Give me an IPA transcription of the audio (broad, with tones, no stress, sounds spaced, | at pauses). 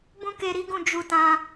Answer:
b ũ˦ k e˧ ɾ i˦ ɡ ũ˦˨ d͡ʒ u˧ t ã˧